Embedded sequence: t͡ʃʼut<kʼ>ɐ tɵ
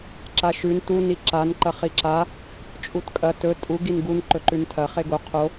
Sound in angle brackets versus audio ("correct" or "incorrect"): correct